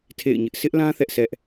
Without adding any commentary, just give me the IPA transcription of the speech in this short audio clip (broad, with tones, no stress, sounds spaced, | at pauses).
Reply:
tʰ ḛ˦˨ ɪ̯ ɲ ɪ˦ ʔ sʰ ɪ˦ ʔ l ã˦ θ ɛ˦ ʔ sʰ ɛ˦ ʔ